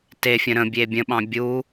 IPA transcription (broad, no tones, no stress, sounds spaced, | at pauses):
t e fʲ ə̃ ɾ ə̃ bʲ e bʲ ə̃ ɓ ɑ̃ bʲ u